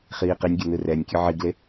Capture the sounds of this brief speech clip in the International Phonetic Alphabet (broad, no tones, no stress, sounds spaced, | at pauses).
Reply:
χ iː q i nʲ ɡʲ ʌ n ɯ r ɛ nʲ kʲ ɯ ʕ i ɡ l e